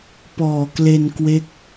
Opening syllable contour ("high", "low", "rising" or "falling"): low